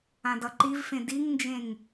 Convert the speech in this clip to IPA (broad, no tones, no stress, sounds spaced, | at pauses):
ã d ʌ ǃ i v f ẽ d i ŋ n d͡ʒ ẽ ŋ